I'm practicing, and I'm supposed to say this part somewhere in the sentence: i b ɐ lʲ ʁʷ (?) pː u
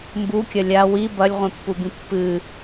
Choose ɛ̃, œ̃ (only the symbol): ɛ̃